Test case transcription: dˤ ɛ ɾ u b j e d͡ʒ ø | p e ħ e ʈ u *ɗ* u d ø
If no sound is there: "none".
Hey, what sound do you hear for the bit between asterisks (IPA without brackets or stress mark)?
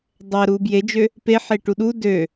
ɗ